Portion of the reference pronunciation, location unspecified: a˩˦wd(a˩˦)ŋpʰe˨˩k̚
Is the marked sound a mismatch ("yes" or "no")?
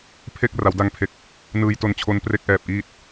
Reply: yes